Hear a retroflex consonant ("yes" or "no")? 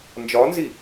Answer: no